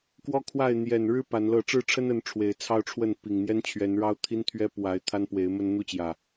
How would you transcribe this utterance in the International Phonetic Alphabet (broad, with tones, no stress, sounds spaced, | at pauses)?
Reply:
k w ɔ˦ kʰ w a˥˨ ɪ̯ n̪ j ɛ˨˩ n ɻ ɻ̩˦ p a˨˦ n l ɤ˥˨ ʈ͡ʂ ɻ̩˥˨ ʈ͡ʂʰ ə˦ n ə˨˦ n ʈ͡ʂʰ w e˨˩ ɪ̯ t͡sʰ ɑ˦ ʊ̯ ʈ͡ʂʰ w ə˥˨ n p i˨˩ ŋ n̪ j ɛ˦ n t͡ɕʰ ɥ ɛ˨˦ n ɻ ɑ˦ ʊ̯ t̪ʰ i˦ n t̪ʰ ɥ ɛ˦ p w a˨˦ ɪ̯ t̪ʰ a˦ n p w e˨˦ ɪ̯ m ə˦ n n̪ u˦ t͡ɕ j ä˨˩